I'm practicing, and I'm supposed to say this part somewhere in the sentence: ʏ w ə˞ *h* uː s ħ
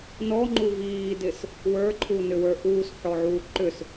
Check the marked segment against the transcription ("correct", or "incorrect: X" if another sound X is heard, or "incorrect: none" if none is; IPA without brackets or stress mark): incorrect: ʔ